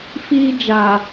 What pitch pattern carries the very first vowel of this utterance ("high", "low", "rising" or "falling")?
high